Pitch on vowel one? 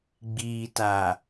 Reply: low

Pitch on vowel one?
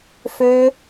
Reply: high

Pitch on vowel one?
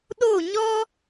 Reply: falling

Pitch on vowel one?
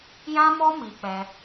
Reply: high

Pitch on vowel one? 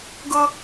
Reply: high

